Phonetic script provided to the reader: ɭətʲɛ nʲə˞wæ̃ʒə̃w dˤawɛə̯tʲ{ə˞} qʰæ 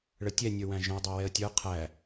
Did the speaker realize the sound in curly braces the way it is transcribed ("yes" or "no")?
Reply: yes